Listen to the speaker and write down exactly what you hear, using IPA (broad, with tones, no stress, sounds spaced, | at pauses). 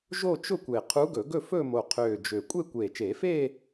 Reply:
ʒ o˥˧ t͡ʃ ʊ˥˧ kʷ e˨˩ qʰ u˧˥ ɡ ɵ˨˩˦ ɡ ɵ˥˧ f ɵ˥˧ m o˨˩ qʰ øː˨˩ d͡ʒ ø˨˩ kʷʼ e˥˧ kʷ eː˨˩ t͡ʃ eː˨˩˦ f eː˥˧